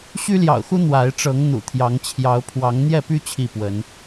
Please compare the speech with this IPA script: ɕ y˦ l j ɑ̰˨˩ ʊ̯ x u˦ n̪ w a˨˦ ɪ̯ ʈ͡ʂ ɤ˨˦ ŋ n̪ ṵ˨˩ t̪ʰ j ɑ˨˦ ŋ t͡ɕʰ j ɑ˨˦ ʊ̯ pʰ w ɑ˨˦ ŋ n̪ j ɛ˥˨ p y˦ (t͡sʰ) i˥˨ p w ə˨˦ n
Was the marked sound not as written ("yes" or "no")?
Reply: yes